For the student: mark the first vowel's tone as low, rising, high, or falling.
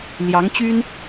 rising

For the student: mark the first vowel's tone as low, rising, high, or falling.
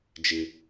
low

